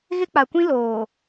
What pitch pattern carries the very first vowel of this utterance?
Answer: high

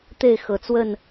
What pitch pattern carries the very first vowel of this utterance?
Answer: falling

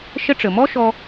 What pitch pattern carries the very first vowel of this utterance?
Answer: high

